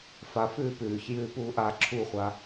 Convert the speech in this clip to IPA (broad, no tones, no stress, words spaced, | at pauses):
fa fʉːpʉːç jʉːpuːʔa ǁʰuχʷa